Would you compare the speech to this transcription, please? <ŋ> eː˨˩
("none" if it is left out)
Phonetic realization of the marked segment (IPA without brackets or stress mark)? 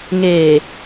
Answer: ŋ